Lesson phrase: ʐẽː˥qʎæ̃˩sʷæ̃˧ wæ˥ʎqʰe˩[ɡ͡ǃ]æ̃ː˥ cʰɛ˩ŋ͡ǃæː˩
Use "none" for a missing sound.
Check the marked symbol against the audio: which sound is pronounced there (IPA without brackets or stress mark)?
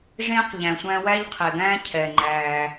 ɡ